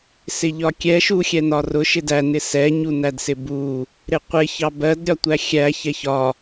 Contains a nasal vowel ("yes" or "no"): no